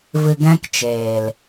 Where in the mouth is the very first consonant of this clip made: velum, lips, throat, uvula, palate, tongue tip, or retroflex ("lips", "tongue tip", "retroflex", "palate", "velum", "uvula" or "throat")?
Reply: lips